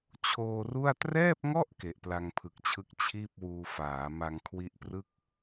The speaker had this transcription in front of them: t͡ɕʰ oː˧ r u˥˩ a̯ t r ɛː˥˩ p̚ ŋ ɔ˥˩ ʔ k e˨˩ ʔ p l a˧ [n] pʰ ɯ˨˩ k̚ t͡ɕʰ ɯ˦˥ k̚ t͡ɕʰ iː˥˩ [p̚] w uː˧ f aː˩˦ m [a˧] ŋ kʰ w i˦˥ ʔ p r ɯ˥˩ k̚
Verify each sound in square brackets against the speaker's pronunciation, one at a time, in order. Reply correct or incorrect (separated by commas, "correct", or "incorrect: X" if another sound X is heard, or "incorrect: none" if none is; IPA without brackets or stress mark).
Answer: incorrect: ŋ, correct, correct